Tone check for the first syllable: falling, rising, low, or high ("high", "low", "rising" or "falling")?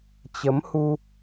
rising